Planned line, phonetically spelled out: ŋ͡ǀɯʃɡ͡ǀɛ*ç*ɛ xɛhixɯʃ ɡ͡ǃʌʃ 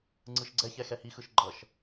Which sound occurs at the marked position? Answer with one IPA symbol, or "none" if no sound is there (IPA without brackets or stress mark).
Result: ç